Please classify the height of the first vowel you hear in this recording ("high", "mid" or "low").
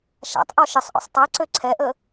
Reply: low